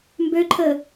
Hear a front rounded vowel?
yes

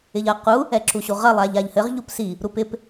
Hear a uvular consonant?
yes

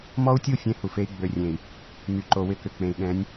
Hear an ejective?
no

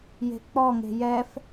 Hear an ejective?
no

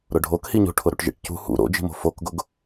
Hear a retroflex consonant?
yes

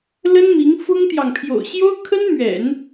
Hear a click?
no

